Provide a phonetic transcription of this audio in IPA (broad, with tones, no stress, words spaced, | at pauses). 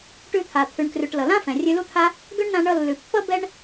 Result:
ʈʉ˧t̪ʰa˩ t̪ʰʉ˩ɳkrʉ˩ʈ lʌ˩lã˥ fɛ̃˩rʲʉ˧lu˥t̪ʰa˥ | ɡø˥ɳnã˧ ɳʌ˧lːʉ˩pːʌ˥ bɛ˥ɳ